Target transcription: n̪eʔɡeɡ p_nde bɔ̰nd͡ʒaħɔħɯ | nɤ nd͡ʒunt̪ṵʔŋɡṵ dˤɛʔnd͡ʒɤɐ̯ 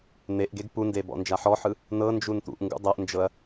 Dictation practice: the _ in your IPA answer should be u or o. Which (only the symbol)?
u